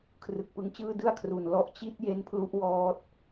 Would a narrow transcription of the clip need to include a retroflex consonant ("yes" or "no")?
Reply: no